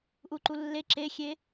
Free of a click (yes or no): no